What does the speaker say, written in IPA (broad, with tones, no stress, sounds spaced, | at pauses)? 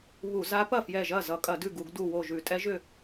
β u˧˩˧ z a˧˥ p ɐ˥˩ f j ɛ˧˩ ʒ ɐ˥˩ z ʌ˧˩˧ kʼ ɐ˧˩˧ d ʉ˥˩ ɡ u˧˩˧ ɡ d u˧˩ w o˧˩ ʒ ʉ˧˩˧ tʼ ɛ˧˥ ʒ ʏ˥˩